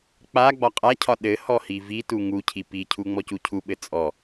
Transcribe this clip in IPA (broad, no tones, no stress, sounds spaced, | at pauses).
k͡p a ɡ͡b ɒ qʼ a cʰ ɒ ɗ ɘ h ɔ h i v i t u ŋ u cʰ i p i cʰ u ŋ͡m ɔ c u cʰ u ɓ ɘ t͡sʼ ɔ